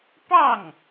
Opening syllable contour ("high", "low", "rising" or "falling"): falling